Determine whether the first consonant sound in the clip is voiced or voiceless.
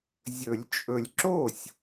voiced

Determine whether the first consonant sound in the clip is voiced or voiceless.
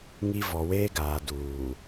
voiced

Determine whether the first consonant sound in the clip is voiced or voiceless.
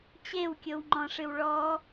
voiceless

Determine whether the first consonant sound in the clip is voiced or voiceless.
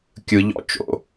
voiceless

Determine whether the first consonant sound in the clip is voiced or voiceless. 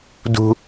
voiced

